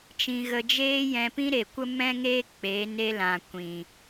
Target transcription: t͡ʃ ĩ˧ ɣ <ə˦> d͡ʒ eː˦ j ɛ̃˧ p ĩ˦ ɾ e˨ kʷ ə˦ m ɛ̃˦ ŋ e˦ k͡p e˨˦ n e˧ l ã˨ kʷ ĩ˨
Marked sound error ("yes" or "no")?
yes